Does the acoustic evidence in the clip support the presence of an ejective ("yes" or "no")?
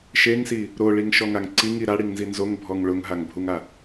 no